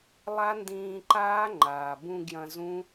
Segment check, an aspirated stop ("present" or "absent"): absent